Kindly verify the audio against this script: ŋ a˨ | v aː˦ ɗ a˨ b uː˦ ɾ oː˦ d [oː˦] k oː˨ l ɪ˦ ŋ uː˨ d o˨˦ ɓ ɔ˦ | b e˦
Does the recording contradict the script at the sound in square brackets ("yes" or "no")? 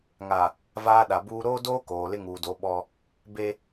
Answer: no